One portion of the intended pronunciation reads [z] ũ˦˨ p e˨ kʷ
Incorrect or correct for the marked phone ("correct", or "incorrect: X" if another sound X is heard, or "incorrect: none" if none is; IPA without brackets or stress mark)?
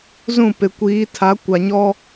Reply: correct